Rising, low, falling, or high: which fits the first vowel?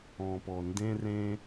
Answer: low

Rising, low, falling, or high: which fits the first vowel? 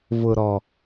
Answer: low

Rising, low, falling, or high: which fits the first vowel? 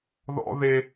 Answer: high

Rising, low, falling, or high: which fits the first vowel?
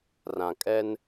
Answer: low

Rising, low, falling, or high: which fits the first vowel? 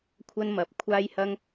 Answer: high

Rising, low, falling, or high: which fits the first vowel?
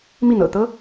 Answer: falling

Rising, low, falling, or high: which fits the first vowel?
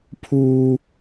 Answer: high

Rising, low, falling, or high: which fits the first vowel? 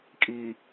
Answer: low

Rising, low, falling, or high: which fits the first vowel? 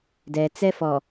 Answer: low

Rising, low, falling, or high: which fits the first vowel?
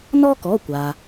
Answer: high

